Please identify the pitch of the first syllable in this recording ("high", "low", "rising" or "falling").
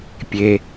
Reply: low